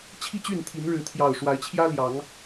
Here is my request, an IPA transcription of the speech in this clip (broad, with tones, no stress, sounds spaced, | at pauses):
t͡ɕʰ i˥˨ t͡ɕ y˥˨ n t̪ʰ i˨˦ n ɻ ɻ̩˨˦ t̪ʰ j ɑ˨˩ ʊ̯ ʂ w a˨˦ ɪ̯ t͡ɕʰ j ä˦ l j ɑ˨˦ ŋ